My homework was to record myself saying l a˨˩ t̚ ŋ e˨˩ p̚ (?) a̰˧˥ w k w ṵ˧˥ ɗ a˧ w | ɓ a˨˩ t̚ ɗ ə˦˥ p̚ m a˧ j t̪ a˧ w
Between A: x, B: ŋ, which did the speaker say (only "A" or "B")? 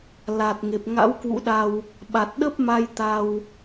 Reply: B